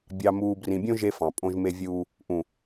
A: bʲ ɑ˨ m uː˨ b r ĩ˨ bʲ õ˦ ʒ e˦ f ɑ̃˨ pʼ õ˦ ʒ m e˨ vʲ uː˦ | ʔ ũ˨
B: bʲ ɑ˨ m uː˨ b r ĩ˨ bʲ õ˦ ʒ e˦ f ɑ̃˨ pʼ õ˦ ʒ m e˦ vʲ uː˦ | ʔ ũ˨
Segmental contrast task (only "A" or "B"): B